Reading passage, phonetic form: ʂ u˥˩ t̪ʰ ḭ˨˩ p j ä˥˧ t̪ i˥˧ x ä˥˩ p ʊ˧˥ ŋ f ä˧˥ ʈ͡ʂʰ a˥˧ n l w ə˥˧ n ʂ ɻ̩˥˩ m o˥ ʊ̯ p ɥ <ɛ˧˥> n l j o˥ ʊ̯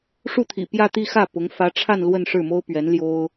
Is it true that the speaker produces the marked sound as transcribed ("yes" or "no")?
yes